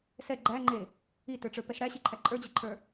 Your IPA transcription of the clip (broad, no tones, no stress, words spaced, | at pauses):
sɛ ɡ͡ǃæŋ͡ǃe | itə˞ʈ͡ʂə˞pɛs ɽæɕiǃʰæ ǃʼə˞d͡ʑeǃʰə˞